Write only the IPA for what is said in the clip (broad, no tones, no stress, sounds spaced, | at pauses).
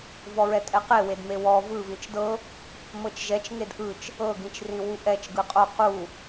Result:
v ɔ ɹ ɛ tʼ ɛ q e w e d m e w ɔ v ɯ v ĩ t͡ʃ d ɤ | m ɤ t͡ʃ ʒ ɛ t͡ʃ ŋ e d ʔ ɯ t͡ʃ | ɤ ɡ ĩ t͡ʃ r ĩ w u ʔ ɛ t͡ʃ ɡ ɯ qʼ o q u